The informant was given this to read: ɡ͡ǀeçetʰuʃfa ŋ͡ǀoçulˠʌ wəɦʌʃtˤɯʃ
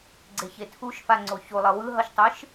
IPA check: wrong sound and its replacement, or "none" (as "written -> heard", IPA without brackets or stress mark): ə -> ɯ